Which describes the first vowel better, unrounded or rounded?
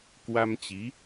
unrounded